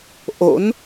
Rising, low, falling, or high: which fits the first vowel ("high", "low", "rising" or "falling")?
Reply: rising